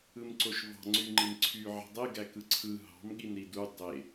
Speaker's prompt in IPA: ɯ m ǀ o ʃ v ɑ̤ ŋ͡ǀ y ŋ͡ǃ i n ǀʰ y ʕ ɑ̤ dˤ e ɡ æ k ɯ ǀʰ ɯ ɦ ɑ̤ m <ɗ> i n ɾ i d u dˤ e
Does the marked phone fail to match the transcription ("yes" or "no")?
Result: yes